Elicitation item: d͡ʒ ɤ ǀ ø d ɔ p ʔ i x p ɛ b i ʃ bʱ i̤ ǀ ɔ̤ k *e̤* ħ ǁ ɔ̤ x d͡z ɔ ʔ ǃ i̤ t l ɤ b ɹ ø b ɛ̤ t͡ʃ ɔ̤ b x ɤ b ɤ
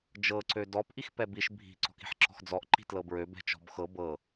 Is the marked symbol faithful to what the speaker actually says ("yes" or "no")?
no